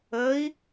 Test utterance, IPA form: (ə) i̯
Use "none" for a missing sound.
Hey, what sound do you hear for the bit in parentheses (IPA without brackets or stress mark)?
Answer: ə